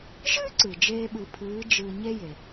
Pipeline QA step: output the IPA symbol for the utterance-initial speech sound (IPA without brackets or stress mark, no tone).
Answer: ʒ